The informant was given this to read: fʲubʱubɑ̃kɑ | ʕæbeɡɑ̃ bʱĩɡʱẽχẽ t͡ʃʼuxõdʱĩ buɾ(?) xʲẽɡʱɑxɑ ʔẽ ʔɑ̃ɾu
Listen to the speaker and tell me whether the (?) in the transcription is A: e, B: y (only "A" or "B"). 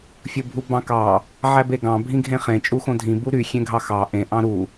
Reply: B